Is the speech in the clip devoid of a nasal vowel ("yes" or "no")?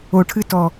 yes